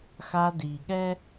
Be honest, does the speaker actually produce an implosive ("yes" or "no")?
yes